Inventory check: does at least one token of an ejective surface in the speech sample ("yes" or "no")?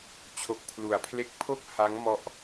no